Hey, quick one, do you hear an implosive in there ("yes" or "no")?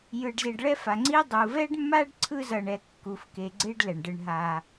no